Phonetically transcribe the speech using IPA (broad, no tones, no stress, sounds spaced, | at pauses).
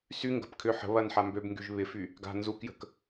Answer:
s y ŋ ɡ ə̤ p kʰ ʏ ħ ə̤ β ɐ n ħ a m b ø b ŋ ɡ y ʒ β ɪ f y | ɡ a̤ n z u k j ə̤ k